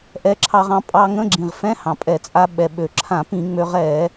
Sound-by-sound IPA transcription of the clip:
ʔ ɛ˧ ǁʰ ɑ˧ ʁ ɑ̃˧ pʼ ɑ˧ ŋ ə̃˧˥˧ ɡ͡ǁ ĩ˩ ʁ f ɛ̃˧˥˧ h ɑ̃˩ pʼ ɛ˧˩˧ t͡sʼ a˧ ɓ ɛ˩ ɓ ø˩ ǁʰ ã˧˩˧ p ĩ˧˩˧ ŋ͡m ø˧ ʁ ɛ˧˩˧

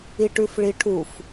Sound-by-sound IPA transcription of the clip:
i ʈ ʉ f ɭ i ʈʰ u f

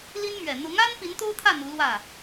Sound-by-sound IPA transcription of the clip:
l i˥ n m ɥ ɛ˨˩ n̪ ʊ˧˥ ŋ a˥ n p i˧˥ n t̪ o˥ ʊ̯ t̪ʰ ä˥˩ n̪ u˧˥ l w ä˥˩

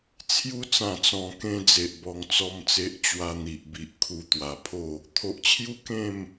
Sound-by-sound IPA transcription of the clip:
t͡sʰ j u˧ t͡s ã˨˩ t͡s ɔ̃˨˩ k ẽ˧ d͡z e˨ ʔ b ɔ˧ ŋ t͡s ɔ˥˧ m t͡s e˦ ʔ t͡ɕ w a˧ n̪ i˨ ʔ b i˨ ʔ kʰ u˧ t̪ w a˨˩ pʰ o˥˧ | t̪ʰ o˨ ʔ t͡ɕʰ j u˦ k ẽ˥˧ m

